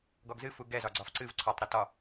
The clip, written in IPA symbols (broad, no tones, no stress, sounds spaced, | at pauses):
ɡ ɔ ɡ z ɨ f u ɡ ɛ z ɒ ɡ͡ǀ ɒ f ǀ ɨ v ǀʰ ɔ tˤ ɾ o t ɒ